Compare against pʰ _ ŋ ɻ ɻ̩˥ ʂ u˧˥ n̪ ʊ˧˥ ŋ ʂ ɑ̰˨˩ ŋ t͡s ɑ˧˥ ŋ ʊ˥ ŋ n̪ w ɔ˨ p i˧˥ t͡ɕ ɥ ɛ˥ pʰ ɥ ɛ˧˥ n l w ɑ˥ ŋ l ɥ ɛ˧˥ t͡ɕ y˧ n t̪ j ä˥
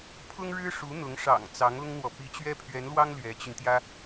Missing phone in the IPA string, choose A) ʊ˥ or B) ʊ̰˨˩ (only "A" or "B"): A